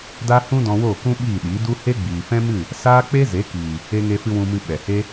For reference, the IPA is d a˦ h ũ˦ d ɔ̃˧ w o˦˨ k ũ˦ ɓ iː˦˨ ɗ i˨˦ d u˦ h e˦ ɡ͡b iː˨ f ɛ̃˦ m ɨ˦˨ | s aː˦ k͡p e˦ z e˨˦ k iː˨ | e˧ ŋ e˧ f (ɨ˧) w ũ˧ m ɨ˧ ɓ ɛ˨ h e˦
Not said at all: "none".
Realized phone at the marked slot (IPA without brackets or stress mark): ɨ˧